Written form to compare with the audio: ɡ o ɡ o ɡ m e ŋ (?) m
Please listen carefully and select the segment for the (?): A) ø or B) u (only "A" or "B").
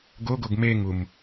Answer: B